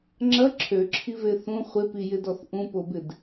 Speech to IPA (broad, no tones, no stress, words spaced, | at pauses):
ŋ͡ǁɐ ǁʰøǁʰive θũ χʷɪpijɪdɔθ ʔũpobɪd